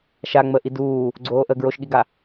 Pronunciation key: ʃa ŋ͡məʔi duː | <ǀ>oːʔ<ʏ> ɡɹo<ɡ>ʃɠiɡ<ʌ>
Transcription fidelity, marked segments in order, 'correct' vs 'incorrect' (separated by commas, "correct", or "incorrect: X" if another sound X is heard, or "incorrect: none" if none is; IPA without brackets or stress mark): incorrect: ɡ͡ǀ, incorrect: ə, incorrect: none, incorrect: a